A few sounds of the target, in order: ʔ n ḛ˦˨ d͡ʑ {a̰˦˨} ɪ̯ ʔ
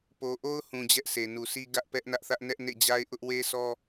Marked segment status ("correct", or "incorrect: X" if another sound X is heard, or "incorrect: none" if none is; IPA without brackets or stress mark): incorrect: a˦